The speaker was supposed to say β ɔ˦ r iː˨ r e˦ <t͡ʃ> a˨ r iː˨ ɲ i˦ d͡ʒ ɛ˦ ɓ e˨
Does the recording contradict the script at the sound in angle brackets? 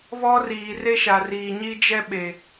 yes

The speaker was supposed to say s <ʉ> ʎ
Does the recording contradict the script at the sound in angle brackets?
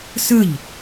yes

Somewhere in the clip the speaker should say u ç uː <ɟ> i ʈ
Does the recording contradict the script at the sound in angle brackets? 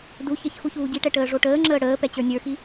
no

